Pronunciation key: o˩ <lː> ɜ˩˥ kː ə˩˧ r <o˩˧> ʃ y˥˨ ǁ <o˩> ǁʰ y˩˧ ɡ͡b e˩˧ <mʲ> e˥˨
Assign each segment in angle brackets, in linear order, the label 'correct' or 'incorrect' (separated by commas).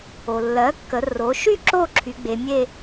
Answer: correct, correct, incorrect, correct